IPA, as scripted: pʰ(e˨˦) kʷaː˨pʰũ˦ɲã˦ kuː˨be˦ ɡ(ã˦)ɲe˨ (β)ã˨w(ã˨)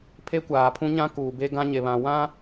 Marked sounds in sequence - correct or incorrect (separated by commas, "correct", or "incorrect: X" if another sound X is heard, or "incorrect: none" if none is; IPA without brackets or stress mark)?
incorrect: e˦, correct, correct, incorrect: ã˦